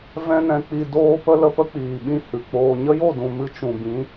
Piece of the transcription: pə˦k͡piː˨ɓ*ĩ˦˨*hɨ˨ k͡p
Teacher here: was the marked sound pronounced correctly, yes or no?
yes